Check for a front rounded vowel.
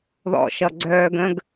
present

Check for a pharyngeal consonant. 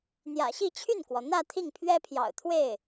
absent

